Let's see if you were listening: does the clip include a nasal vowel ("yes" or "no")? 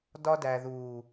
no